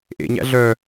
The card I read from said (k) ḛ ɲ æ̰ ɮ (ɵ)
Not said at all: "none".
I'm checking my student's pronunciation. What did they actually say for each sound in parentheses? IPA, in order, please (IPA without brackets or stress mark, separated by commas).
ʔ, œ